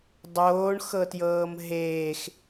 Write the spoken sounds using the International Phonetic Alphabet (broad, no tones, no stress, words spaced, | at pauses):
dˤoːɳxɤtjɤːm ɦeːx